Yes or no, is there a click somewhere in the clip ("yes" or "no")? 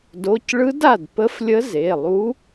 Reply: no